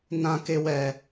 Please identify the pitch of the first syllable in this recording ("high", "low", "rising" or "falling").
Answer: high